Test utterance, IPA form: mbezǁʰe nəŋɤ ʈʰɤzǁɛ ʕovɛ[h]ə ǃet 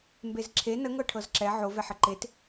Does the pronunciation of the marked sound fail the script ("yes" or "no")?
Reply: yes